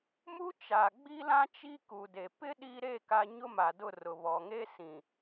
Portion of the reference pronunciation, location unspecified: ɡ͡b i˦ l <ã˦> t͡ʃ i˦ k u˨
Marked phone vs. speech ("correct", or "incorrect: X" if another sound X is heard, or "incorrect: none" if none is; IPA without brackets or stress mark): correct